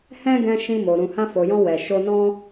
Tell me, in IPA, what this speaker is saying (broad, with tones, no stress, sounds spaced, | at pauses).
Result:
h ɛ̃˦ ɡ ɛ̃˧ ʃ ĩ˧ m o˨ ɾ ũ˨ h ã˧ f o˨ j ɔ̃˧ w ɛ˨ ʃ o˧ n ɔ̃˦